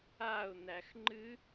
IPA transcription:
a ʊ̯ n̪ æ x ŋ͡ǃ ɨ

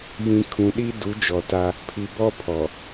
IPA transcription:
j ĩ˨ kʰ ũ˨ ɗ i˦ d u˨˦ d͡ʒ ɔ˨ t a˦ | pʰ i˨ b ɔ˦ pʰ ɔ˨

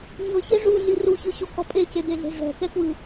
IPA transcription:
ɲ ɤ ç e ʐ u ɮ i r u ç ɯ ɕ o kʰ ɔ pʼ e c e d̪ e ɮ e̤ ʐ ɛ̤ k ɛ k w ɯ

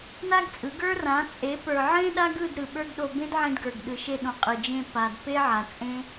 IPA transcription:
n a˦ ɡ t͡sʼ ɯ˨˦ ɡ ə˞˦ r ã˨˦ t͡sʼ e˨˦ p ə˞˨ ʕ ẽ˦ ɗ a˦ ɡ ɯ˦˨ d ɾ ɯ˨ ɓ ə˞˦ ɡ ɗ o˧ b ẽ˦ d ʕ ẽ˧ d ɡ ə˞˨ ɡ ɗ ɯ˨ ʃ e˧ ɗ õ˨ qʼ ɯ˨ d͡ʒ ẽ˧ p a˨ d p e˦ ʕ a˨ t͡sʼ ẽ˦

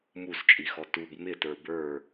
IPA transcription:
m u s t͡ʃʼ i x ɔ t u b m ɪ t ə˞ b ə˞

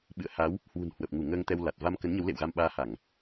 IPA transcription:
ɓ ɨ̰˧˨ ə̯ h a˨˦ w | h w ṳ˨˩ n h w ə˨˩ p̚ ŋ u˧˩ ŋ əː˧ ŋ t̪ ɛ˧ w l a˨˩ t̚ v a˧ m k ə˨˦ n ɲ ə˨˦ w l ḛ˧˨ w ɣ a˧ m ɓ aː˧ h a˧˩˨ ŋ

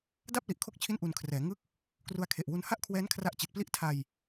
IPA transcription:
d a˥˩ p̚ l i˨˩ ʔ kʰ o˦˥ k̚ t͡ɕʰ i˦˥ n ʔ u˧ n kʰ r ɛː˩˦ ŋ ɯ˦˥ k̚ | k r u˧ a̯ kʰ e˨˩ ʔ w u˦˥ n h a˥˩ ʔ kʰ w ɛː˦˥ n kʰ r a˦˥ ʔ t͡ɕ i˨˩ t̚ p l i˥˩ ʔ tʰ a˧ j

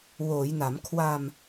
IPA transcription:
w oː˩˦ j n a˩˦ m kʰ w a˧ m

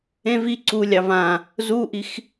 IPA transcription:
ẽ v i ǀ u lʲ ɑ v ã | z u ʔ i x

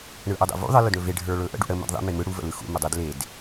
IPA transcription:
ɳ ɯ ʔ ʊ dˤ ḛ v ṵ ðˤ ə l ɵ d ɳ ɵ v e ɖʱ ə˞ ɭ ɵ ʔ ə̰ ɖ ṵ ɽ ə m ə̰ d ðˤ ḛ m e m ɯ ɽ u v ə̰ l ɯ x ṵ m ə dˤ ɯ d l e d

